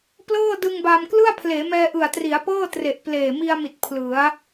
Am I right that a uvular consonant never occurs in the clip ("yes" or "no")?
yes